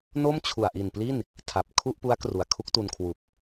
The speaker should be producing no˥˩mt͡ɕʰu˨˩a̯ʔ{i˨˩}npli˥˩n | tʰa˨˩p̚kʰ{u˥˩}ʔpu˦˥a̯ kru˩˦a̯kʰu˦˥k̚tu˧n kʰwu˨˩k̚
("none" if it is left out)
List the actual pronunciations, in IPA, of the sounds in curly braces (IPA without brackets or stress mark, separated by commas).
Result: i˨˩, u˥˩